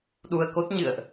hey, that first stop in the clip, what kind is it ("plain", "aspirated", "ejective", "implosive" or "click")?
implosive